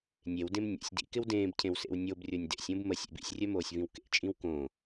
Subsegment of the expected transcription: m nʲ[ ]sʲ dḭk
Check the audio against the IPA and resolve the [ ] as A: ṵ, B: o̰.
B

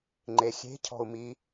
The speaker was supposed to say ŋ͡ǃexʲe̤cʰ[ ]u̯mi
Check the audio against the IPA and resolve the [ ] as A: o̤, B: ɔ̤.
B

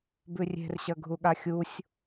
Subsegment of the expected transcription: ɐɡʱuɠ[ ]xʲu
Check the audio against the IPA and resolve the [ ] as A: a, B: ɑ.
A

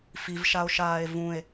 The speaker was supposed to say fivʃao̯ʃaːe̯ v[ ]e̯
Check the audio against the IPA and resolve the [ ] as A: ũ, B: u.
A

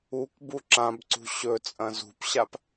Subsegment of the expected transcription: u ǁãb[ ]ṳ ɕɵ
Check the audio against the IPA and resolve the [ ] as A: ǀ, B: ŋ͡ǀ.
A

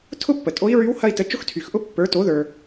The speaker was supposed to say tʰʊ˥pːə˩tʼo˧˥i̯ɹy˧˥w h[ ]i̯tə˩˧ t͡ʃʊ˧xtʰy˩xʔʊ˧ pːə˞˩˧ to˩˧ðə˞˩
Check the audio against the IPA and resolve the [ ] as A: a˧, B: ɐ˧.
B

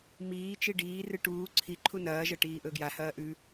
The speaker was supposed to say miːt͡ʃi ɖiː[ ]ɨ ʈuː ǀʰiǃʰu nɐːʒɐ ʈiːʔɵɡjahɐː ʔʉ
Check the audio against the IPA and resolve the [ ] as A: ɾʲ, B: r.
B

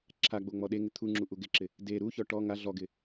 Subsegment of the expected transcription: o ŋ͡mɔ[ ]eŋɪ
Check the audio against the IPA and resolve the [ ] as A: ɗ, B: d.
A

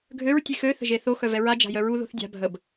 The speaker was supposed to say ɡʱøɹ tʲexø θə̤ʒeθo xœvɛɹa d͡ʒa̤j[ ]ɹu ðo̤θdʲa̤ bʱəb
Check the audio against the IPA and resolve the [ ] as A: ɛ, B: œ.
B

